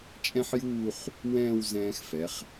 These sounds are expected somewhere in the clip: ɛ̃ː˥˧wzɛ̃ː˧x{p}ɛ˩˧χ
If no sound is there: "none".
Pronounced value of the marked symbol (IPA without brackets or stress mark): f